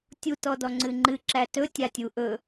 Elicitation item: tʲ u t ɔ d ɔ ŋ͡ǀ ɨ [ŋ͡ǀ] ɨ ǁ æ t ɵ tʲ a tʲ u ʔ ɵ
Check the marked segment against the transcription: incorrect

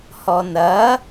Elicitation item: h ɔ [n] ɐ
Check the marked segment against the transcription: correct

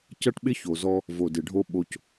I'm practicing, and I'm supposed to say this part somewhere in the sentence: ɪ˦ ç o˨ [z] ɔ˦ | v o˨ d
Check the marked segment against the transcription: correct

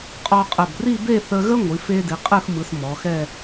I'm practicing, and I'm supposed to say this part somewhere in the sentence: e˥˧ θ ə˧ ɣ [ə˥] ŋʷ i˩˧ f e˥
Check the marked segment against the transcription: correct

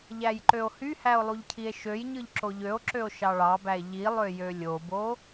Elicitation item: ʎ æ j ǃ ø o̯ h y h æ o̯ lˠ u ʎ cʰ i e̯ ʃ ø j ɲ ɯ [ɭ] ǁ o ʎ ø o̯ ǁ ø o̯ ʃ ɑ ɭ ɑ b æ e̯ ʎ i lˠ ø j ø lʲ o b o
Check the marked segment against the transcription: incorrect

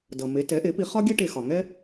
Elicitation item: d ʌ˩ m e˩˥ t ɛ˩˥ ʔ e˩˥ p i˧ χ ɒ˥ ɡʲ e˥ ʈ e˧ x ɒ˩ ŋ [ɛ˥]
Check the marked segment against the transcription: correct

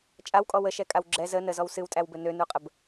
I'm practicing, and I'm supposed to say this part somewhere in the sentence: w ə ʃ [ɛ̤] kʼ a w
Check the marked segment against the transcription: incorrect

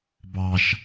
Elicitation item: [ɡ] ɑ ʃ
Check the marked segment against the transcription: incorrect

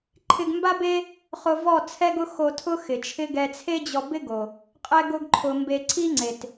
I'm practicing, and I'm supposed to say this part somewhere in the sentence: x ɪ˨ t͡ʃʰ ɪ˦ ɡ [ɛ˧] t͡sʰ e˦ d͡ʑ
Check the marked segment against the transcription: correct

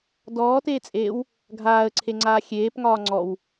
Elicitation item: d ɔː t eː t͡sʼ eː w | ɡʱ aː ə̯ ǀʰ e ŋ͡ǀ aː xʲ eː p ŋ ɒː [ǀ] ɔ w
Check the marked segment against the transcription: incorrect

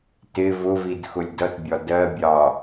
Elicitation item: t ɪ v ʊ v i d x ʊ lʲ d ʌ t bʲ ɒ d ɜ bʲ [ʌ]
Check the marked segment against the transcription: incorrect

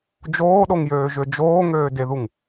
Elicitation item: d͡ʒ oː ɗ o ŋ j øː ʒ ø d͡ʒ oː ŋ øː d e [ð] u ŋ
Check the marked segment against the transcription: correct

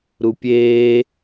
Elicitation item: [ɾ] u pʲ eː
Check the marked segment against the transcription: correct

